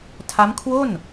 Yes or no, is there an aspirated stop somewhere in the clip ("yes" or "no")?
yes